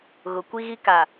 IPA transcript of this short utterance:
ɣ ʊ˨ kʷ i˦ ɣ i˦ k a˨

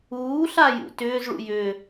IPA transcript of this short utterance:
uː ɬ a j ṵ t ʏː z ɭ ṵ j ʏː

